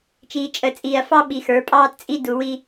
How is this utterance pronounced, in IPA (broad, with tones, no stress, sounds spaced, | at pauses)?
t͡ʃ iː˨ t͡ʃʼ ə˨ t͡sʼ iː˨ ɐ̯ f ɑ˦ ɓ i˨ x ə˞˨˦ pʼ ɑː˦ t t͡sʼ i˦ d u˨ w i˦